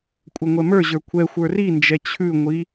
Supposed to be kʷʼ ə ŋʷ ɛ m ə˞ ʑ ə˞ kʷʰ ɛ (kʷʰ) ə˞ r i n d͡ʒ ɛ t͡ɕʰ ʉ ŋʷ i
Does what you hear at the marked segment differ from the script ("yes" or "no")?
yes